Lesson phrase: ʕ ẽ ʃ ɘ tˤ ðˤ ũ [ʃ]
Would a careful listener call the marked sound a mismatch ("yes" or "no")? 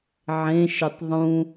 yes